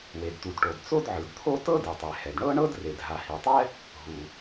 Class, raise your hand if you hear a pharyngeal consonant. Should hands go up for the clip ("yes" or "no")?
yes